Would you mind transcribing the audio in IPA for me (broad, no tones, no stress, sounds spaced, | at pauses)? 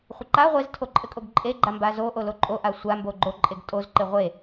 χʷ ə ǃ a ʁʷ e z tʰ o ǃʼ ɘ kʼ o ɡ ǃʼ e ɡ͡ǃ a m b a z o ʔ o l o ǃʼ o ʔ a sʷ a m b o ɡ͡ǃ o ǃʼ e ɡ tʼ o z ǃ e ʁʷ e